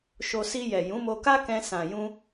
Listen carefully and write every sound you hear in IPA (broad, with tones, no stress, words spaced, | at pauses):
ʃo˧ si˧jɛ˨jũ˨˦ mo˧ka˦kɛ̃˧ sã˨jũ˧